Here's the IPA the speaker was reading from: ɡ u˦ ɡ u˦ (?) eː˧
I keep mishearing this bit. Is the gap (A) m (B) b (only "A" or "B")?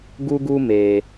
A